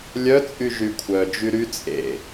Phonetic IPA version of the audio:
lʲœt͡sʼy ʒykʷʰœ d͡ʒyɾy t͡sʼḛ

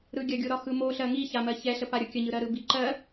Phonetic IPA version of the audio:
ɾɯɡʲɐɡʲo ɾɒxɯmo ɬɜŋiçamɜ çɛɬə paɾʲokʲəɲɯ ɾɜɾɯbiǃɜ

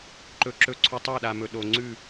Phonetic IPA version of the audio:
ǃɵ˨ǁɵ˨ǀʰɵ˨ tˤa˦˨ɗa˨mɵ˨ ɗo˨ ŋ͡ǀʉ˦˨

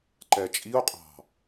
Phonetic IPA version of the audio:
ǃɛt͡ʃʼio̯ qʼɑ̤

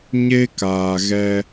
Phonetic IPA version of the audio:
ɲe˦kaː˨ɣɛ˧

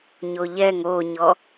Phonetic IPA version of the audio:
ɲoʎɛŋ oɲɔ

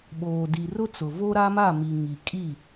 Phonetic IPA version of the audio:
ɓoː˨di˨rʊ˦t͡sʊ˨ vo˦ɾa˦ma˦˨mi˨ ŋi˨kʼi˦˨

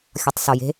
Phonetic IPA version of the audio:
xʲɔtˤsɔje̤

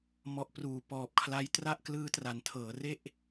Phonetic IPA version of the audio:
mɔ˨˩ʔpruː˩˦ pɔː˨˩p̚kʰla˦˥j tra˥˩ʔklɯː˦˥tra˩˦n tʰɤː˩˦re˥˩ʔ

